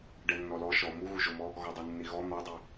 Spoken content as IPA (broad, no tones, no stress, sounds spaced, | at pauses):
ɖ ɛ nː ɔ l ɔ ʃ ɔ m u ɣ u ʒ o m ɔ | ɣ ɔ dˤ o nː i ɣ ɔ n̪ ɔ dˤ i